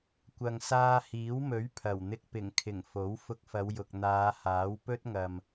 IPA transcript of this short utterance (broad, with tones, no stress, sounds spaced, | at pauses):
kʷ ɐ˨ ŋ s aː˧ h iː˨˥ w m ɵ˨˥ ɥ pʰ ɐ˨˩ w n̪ ɪ˧ k̚ p ɪ˨˩ ŋ kʰ ɪ˨˩ ŋ f o˨˥ w f ʊ˧ k̚ f ɐ˨˧ w j ʊ˨ k̚ n̪ aː˨˧ h aː˨˥ w p ɵ˥ t̚ ŋ ɐ˨ m